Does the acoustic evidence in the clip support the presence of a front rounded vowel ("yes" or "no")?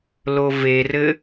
no